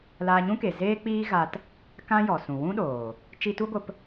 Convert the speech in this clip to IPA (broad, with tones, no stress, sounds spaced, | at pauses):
l aː˧ ɲ ũ˦ k e˨ z eː˦ k͡p iː˦ ɣ a˧ t | k ã˦ j ɔ˨ s ũ˨ w ũ˦ ɗ oː˨ | t͡ʃ i˧ t u˦ ɡʷ ə˧ p